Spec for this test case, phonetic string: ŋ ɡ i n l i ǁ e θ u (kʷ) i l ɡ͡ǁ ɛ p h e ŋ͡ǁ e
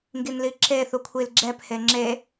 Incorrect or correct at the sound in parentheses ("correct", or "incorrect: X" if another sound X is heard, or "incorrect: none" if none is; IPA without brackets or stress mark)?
incorrect: kʷʰ